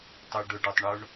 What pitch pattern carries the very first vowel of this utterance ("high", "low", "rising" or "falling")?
high